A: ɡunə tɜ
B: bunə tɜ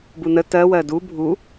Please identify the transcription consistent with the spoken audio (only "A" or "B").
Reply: B